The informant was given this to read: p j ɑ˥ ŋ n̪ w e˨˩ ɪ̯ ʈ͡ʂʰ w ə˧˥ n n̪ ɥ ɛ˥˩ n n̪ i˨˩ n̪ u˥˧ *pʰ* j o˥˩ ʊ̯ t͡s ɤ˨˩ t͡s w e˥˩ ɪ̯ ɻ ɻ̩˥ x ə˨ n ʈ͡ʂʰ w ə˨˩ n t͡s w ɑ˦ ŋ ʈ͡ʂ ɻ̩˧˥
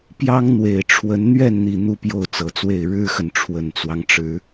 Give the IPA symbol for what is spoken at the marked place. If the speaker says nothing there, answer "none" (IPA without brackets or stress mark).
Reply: p